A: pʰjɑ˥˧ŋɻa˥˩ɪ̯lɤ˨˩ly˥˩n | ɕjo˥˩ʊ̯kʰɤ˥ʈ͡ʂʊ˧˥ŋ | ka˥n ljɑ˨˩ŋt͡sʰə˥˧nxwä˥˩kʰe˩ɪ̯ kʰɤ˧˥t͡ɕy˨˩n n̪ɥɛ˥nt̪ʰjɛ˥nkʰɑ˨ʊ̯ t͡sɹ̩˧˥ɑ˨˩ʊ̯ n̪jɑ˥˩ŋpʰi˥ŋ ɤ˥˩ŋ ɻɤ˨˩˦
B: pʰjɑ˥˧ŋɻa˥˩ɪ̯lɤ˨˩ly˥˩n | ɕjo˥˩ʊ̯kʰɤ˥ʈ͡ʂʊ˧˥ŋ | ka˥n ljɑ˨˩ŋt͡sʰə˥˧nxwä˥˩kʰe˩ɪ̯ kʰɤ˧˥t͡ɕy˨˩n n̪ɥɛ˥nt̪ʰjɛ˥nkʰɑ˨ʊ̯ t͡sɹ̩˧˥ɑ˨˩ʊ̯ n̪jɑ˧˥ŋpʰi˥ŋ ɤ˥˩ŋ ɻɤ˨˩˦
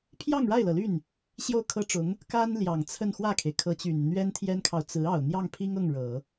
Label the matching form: A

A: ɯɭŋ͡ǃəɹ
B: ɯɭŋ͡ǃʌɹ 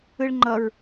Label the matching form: B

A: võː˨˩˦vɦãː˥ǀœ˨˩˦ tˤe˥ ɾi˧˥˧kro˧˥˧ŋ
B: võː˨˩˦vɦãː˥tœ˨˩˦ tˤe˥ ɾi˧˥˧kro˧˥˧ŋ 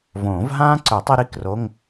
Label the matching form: A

